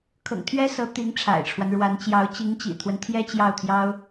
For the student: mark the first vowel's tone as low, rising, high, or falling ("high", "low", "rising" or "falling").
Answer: low